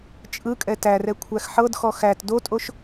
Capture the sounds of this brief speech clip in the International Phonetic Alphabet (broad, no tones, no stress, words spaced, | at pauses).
t͡ʃʼɯkʼɛ tærɛ kʷʰæxħɤdxɔ xæt dotʼoʃ